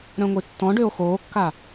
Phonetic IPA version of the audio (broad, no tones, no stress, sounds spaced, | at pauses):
ɾ œ̃ ŋʷ i tː ɔ̃ ɖ ø o̯ x oː kː a